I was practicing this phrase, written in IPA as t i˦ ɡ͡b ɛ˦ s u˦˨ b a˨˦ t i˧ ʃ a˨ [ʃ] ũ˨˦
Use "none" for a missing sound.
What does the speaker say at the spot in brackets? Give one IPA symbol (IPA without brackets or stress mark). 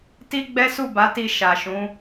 ʃ